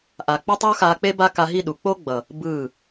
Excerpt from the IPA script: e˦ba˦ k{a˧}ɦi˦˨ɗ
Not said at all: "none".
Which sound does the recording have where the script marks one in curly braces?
a˧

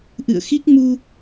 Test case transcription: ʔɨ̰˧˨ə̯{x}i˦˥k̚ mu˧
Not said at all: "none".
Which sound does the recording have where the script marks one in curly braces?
x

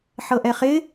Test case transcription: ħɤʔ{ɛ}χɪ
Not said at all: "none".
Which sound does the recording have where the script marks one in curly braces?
ɛ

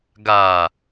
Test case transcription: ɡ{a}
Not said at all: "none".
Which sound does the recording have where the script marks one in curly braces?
a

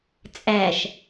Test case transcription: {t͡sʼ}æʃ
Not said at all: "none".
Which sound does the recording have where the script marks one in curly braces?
t͡sʼ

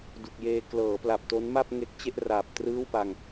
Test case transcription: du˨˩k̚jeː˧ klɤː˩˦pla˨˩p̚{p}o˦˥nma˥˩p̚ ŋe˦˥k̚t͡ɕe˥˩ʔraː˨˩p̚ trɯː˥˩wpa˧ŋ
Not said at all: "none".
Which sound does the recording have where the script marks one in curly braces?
t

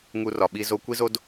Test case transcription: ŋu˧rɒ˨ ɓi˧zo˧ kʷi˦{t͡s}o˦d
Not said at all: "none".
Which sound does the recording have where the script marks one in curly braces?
z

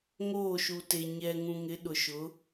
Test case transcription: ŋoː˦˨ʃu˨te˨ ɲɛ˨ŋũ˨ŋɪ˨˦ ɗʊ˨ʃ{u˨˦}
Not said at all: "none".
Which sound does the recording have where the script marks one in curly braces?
ʊ˨˦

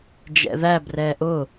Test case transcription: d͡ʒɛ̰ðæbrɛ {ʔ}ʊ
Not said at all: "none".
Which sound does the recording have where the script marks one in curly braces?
ʔ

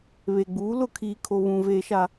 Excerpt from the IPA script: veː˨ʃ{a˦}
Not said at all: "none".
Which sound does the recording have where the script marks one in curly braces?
a˨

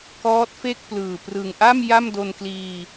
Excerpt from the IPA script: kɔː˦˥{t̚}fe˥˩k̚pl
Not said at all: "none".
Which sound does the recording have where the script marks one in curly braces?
t̚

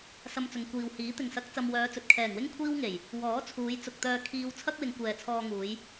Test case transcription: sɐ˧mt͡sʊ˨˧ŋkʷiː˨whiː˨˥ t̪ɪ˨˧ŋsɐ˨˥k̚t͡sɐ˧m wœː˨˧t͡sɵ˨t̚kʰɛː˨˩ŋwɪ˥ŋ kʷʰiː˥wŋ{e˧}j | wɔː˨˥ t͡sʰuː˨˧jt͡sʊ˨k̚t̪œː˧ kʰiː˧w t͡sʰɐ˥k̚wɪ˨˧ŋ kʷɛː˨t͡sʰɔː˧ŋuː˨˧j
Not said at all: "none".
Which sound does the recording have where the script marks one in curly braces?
e˨˩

